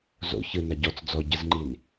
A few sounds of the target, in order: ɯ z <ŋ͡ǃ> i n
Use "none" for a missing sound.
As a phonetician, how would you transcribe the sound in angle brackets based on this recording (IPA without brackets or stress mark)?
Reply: ŋ͡ǃ